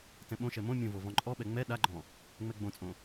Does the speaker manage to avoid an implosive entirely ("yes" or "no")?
no